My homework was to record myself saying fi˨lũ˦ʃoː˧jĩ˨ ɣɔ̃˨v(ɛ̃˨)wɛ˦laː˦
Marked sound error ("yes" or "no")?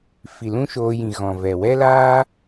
yes